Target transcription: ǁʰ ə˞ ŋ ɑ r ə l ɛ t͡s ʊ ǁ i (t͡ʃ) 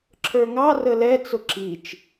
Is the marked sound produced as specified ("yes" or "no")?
yes